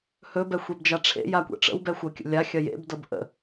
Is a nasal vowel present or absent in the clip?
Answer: absent